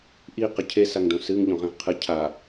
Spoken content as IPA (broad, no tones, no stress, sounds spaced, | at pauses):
ʔ i q ə cʰ e s a ŋ d õ s ɨ ŋ ʎ õ ʁ ẽ ʁ qʰ ɨ cʰ a